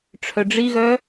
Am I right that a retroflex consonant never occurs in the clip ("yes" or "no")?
no